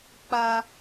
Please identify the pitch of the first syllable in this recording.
high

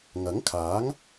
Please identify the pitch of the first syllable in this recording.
rising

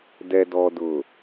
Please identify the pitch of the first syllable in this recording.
low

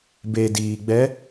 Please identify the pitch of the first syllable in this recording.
low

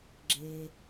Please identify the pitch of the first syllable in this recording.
low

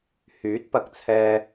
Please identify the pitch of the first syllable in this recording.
rising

